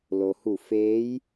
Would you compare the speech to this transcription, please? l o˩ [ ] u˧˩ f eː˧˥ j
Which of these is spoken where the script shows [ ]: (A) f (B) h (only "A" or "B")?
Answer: B